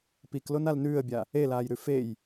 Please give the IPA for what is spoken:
p i k l o n a l n ʉː ə̯ bʲ a | e l aː j ɾ ʉ f e j

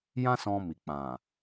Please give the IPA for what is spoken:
j ã˦ s ɔ̃˧ m i˨ k͡p ã˨

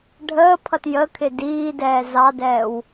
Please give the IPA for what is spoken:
ɖʱ əː pʰ ʌ t j ə kʰ ɪ d iː d ɛː z ɑ d ɛː w

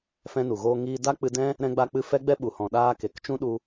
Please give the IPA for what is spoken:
f ɛ̃˧ n u˨ ɣ oː˧ ŋ iː˧ d a˦ k͡p ɨ˧ d ɛ̃˦ | ɾ ɛ̃˧ ɡ͡b a˧ k͡p ɨ˧ f ɛ˦ ɡ͡b ɛ˦ ɓ u˨ h ɔ̃˨ ɗ aː˧ k e˨ k t͡ʃ ũ˦ ɗ u˧

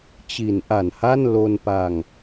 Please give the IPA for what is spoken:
t͡ɕ i˩˦ n ʔ a˨˩ n h a˥˩ n l o˧ n p a˧ ŋ

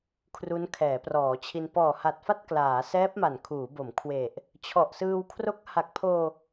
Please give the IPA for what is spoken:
kʰ r u˦˥ n kʰ ɛː˩˦ p r ɔː˩˦ t͡ɕʰ i˧ n p ɔː˨˩ h a˨˩ t̚ f a˥˩ t̚ k l aː˩˦ s ɛː˦˥ p̚ m a˨˩ n kʰ uː˩˦ b o˩˦ m kʰ w e˨˩ ʔ | t͡ɕʰ ɔ˨˩ ʔ s ɯː˧ w kʰ r o˦˥ k̚ h a˨˩ k̚ pʰ oː˧

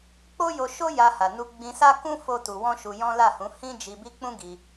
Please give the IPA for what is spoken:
k͡p o˦ j o˧ ʃ o˦ j a˧ h a˨ n u˧ ɡ͡b ĩ˧ s a˦ k ũ˦ f o˦ t u˧ w ɔ̃˦ ʃ u˧ j ɔ̃˦ l a˦˨ h ũ˨˦ h ĩ˦ d͡ʒ i˧ b i˦ k͡p ũ˦ ɡ i˧

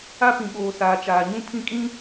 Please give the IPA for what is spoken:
a˦ p ĩ˨ ɓ oː˨ s aː˨ t͡ʃ aː˨ ɲ ũ˦ pʰ ĩ˦ kʼ ĩ˦

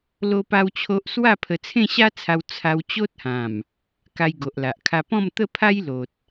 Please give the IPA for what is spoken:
l o˦ p a˦ w t͡ɕʰ o˦ ʔ s w a˥˧ pʰ ə˧ t͡sʰ ẽ˥˧ ɕ a˦ t͡sʰ a˧ w t͡sʰ a˧ w t͡ɕ o˦ t̚ h ã˨˩ m | k a˧ j ɡ o˨ ʔ l a˨ ʔ kʰ a˧ p ɔ̃˥˧ m t̪ ə˥˧ pʰ a˦ j l o˨ t̚

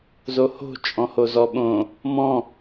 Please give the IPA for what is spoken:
z o h o̤ t͡ʃʼ ɔ̃ h o z ɔ ɓ õ | m ɔ̃

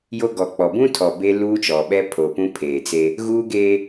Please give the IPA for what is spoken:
j o˦ ɡ ɔ˨ k͡p ɔ˨ b ũ˦ tʰ ɔ˨ b e˦ l uː˦ t͡ʃ ɔ˨ ɓ ɛ˦ pʰ o˨ p ũ˦ pʰ eː˨ t͡s e˦ | ɣ uː˦ ɡ eː˦

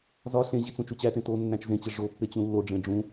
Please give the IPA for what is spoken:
z ɒ ɬ ẽ ʑ i t͡s ũ t͡ʃ u t͡ɕ æ t ẽ t o nː æ̃ t͡ʃ z ẽ t͡ɕ e ʐ o pː e t͡ɕ ũ lː o ɖ͡ʐ ẽ ɖ͡ʐ ũ

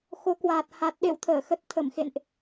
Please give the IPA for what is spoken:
x o˨˦ k w aː˨˩ t̚ h a˨˩ t̚ ɗ ḛ˧˨ w t̪ʰ əː˧˩ x ə˨˩ t̚ t̪ʰ ə˧˩ m x ḛ˧˨ n ʔ

